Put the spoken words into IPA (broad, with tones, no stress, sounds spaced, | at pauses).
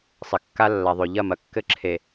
sˤ ɘ˨ kː a˦ lː a˨ ðˤ ø˨ ʎ ɐ˦˨ m ɐ˨ kː ɘ˦˨ ǁʰ e˨